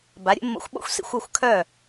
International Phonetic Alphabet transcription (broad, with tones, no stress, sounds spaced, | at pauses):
b a˨˦ ɾʲ ə̰˨˦ mː o̰˧ xʷ ɓ o̰˦ xʷ s ḭ˧ xʷ ʏ˦˨ xʷ kʰ œ˦˨